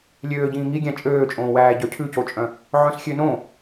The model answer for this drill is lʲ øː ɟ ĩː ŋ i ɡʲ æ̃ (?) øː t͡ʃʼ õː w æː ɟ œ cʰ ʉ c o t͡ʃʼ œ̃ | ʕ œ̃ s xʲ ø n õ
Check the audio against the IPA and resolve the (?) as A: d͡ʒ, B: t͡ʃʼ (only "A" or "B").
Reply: B